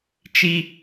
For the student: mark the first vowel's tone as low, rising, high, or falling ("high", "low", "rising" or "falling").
high